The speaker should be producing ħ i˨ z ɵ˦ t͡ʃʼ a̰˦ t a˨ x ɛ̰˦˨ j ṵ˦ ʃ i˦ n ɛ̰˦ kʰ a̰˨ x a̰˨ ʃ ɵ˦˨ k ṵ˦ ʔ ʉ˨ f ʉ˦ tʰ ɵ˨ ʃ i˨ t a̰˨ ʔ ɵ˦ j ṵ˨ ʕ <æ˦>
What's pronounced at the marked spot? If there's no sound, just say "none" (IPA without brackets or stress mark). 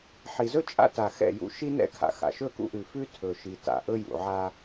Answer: a˦